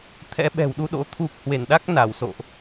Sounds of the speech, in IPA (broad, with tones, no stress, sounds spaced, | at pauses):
t̪ʰ ɛ̰˧˥ ɓ ɛ̤˨˩ w ɗ u˧ ɗ o̰˧˥ t̪ʰ u˨˩ k̚ h w e˧˩ n ɗ a˦˥ k̚ n a˧˩ w s o̰˧˨ ʔ